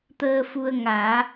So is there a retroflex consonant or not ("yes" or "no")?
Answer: no